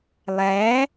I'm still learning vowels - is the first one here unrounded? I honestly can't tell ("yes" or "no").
yes